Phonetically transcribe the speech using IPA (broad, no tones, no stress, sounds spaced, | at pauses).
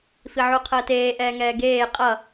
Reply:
f i ʕ u qʰ əː t eː ʔ ɛː ŋ ɛː ɡ eː qʼ ʌ